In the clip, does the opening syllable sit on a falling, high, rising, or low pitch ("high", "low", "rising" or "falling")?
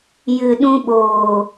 low